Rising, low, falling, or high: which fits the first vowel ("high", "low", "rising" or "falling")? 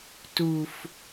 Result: low